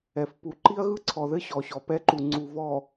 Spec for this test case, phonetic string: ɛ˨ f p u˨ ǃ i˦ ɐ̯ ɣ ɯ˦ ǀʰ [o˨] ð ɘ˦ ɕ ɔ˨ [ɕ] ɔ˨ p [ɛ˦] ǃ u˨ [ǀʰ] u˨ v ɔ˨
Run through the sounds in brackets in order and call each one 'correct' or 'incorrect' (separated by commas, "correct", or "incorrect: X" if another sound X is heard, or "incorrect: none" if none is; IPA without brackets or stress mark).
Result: incorrect: ɔ˨, correct, correct, incorrect: ŋ͡ǀ